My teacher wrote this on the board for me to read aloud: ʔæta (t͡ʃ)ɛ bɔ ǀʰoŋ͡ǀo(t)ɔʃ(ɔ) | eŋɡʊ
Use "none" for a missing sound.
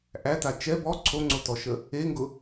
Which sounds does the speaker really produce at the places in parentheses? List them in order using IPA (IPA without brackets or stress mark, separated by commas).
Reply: t͡ʃ, t, ə